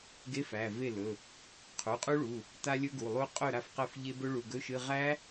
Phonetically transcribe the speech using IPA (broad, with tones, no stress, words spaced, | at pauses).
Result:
ɡe˧˥˧fæ˩˧˩ve˥˩ lɵ˩˧˩ | qʰu˩˧˩qʼu˦˥ɭu˩˧˩ | ta˦˥lʲɵ˦˥ɡu˩˧˩lˠu˦˥ qʼɵ˥˩ ɾa˥˩fqɛ˥˩fʎe˦˥ bɵ˦˥ɭu˩˧˩ɡɵ˧˥˧ʃɨ˧˥˧ ʁæ˦˥